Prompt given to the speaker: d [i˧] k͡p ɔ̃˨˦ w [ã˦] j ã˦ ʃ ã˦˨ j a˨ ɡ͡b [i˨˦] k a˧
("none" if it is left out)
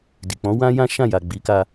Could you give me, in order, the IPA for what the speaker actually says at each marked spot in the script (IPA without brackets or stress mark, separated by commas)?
i˨, ã˦, i˨˦